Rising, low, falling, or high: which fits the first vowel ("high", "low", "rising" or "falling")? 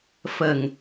low